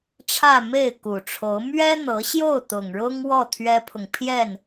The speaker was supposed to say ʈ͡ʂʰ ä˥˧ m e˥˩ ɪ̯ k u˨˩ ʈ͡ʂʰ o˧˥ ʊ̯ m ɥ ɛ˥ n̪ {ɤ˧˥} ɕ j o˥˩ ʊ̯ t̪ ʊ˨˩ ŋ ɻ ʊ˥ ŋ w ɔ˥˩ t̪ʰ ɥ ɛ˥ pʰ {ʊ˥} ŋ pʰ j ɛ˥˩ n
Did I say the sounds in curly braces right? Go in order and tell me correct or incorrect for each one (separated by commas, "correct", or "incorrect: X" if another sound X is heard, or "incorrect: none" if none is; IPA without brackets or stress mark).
correct, incorrect: ʊ˨